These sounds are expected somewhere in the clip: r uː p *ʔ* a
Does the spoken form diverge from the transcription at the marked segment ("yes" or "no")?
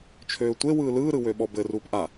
no